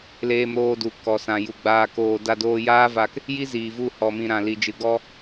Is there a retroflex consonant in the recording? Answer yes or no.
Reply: no